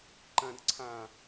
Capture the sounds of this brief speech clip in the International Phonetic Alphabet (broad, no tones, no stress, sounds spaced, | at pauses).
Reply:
ǃ ɐ̃ d ǀʰ ã